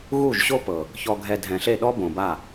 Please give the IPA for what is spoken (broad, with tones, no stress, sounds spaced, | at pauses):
ɣ u˦˨ ʒ ɕ o˦ p ɤ˨ | ç ɔ˧ ɡʱ ɛ˧ dʱ ɛ̃˨ ɬ e˦˨ ɗ ɔ˦ b õ˨ b a˦˨